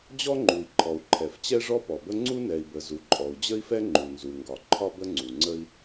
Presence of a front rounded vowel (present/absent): absent